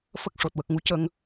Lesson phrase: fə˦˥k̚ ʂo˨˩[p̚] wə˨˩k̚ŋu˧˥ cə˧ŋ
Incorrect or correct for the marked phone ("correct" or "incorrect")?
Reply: incorrect